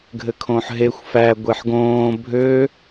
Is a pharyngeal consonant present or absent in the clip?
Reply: present